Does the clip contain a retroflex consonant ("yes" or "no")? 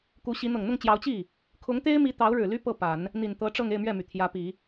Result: yes